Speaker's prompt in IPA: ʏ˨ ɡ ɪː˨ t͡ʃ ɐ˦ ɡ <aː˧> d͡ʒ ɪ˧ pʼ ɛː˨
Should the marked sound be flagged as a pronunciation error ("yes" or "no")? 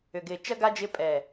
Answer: yes